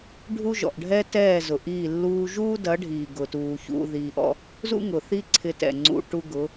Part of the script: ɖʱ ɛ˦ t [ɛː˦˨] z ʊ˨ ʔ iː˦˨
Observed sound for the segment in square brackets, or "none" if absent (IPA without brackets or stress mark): ɛː˦˨